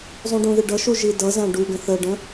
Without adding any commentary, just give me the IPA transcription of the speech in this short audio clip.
zˤ ũ ɖ ũ ð ɪ ɖ ʌ ʃ u ʒ i d ʌ z æ̃ ɖ u ɡ ə̃ θ ə ɖ ə̃

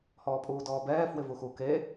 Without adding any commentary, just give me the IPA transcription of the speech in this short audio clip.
h ɔː pʼ uː d ɔː b ɛː f w ɪ v u x u k e

